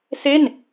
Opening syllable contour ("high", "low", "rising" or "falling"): falling